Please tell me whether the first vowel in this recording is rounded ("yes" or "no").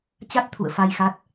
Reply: no